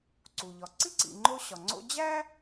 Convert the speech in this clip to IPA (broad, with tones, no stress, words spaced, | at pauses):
ǀu˩ʎɒ˩ǀi˥ǀḭ˨ ŋ͡ǃo˦ɕɒ˩ŋ͡ǀo̰˦ d͡ʑæ˥